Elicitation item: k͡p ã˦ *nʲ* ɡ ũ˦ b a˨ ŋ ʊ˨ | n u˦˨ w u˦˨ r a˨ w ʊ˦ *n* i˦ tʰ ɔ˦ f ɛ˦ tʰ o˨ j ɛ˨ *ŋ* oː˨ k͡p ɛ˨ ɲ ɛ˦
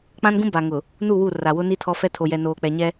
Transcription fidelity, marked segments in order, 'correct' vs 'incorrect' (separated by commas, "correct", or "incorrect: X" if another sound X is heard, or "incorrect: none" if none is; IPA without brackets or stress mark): incorrect: n, correct, incorrect: n